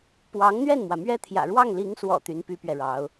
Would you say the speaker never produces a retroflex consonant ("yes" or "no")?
no